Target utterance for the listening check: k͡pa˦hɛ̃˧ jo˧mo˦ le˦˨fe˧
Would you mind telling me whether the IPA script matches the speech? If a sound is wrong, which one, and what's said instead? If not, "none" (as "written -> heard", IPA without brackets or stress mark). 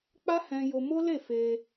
none